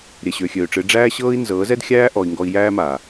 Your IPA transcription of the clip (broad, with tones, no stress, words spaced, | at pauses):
ɾʲɛ˨ɕø˨xʲøː˨ʈ͡ʂɨ˨˦ ɖ͡ʐæː˦ɕɤː˦i̯ nzɤː˨˦zɛ˦dxʲæː˦ ʔɔ˧i̯ŋɡɔ˦i̯ jæː˦maː˨